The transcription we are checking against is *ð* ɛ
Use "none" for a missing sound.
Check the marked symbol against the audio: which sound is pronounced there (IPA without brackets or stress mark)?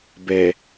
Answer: b